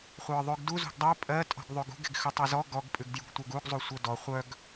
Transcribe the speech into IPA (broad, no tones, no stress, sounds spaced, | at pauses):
χʷ ə˞ ðˤ ʉ ɡ d u z ṳ ɡ dˤ œ pʼ ɜ tʼ ɔ̤ ɡ ðˤ ʉ ɡ ṳ ɡ e̤ ɡ x ʉ tˤ ɜ z ɔ ɡ ɔ ɡ pʼ ʉ ɡ d j ṳ ɡ tʷ œ ɡ u ɡ zˤ u sʷ œ d ɔ χʷ œ ɡ